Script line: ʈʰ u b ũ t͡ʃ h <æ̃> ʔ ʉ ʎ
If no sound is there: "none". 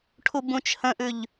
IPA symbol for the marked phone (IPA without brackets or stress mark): ə̃